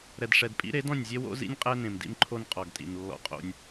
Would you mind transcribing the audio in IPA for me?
ɾ ɛ˨ d ʂ ɛ˨ d pʼ ḭ˦ ɾ e˨˦ d ɔ̃˦˨ nʲ zʲ e˦ w o̰˦ z ḭ˦ nʲ qʼ ɛ˦ n ẽ˨ m d ḭ˦ m ǃʰ o˦ n qʼ ɔ˨ ɡ tʼ ḭ˨ n lː ɔ̰˦ qʼ o̰˦ nʲ

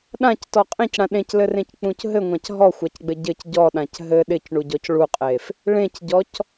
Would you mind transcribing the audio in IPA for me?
ɗ ã c t ɔ qʼ ẽ c ɽ ã ɗ ẽ c l ɘ r ẽ c k͡p ũ c ɦ ɘ ŋʷ ã c ɦ ɔ xʷ a c ɡ͡b ɘ ɟ ɘ c ɟ ɔ ɗ ã c ɦ ɘ ɗ ɪ c ɳ u ɟ ɔ c ɭ u qʼ e f | ɭ ẽ c ɟ ɔ c

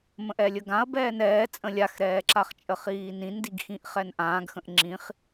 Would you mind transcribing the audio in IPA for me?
m ə̃ ʔ ɛ lʲ ə ɡ ã ɐ̯ b ɛː n ɛː t͡sʼ ə̃ lʲ a x ɾ ɛː ǁ a χ t͡ʃʼ ə χ iː n ĩ n d i ɡ x ĩ ʔ χ ɛ n ʔ ãː ɡ x ə̃ ʔ ŋ͡ǁ ĩ χ

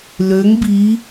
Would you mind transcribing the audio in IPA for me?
l ø ŋ b i

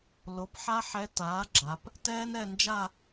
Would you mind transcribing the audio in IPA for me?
l o˩˥ p ħ a˥ ħ ɛ˧˥ t aː˩˥ ɡ͡ǁ a˩˧ p | t ɛː˥ n ɛ˥˧ n d͡ʒ a˥˧

